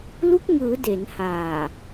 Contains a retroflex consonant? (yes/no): no